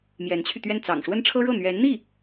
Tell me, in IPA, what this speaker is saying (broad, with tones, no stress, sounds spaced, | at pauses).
m j ɛ˧˥ n t͡ɕʰ y˧ t̪ ɥ ɛ˥˩ n t͡s ɑ̰˨˩ ŋ ʂ w ə˥ n ʈ͡ʂʰ ɤ˥ ɻ ɤ˥˩ n̪ ɥ ɛ˧˥ n n̪ i˥˩